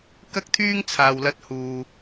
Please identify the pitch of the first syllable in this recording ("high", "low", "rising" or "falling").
high